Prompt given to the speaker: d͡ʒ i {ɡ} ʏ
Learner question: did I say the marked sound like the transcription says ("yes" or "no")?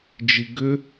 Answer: yes